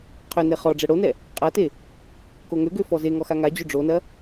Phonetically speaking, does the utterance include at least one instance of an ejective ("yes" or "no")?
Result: yes